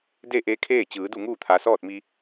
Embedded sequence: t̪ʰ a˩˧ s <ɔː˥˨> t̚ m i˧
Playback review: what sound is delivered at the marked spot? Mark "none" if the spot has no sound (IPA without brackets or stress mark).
ɔː˥˨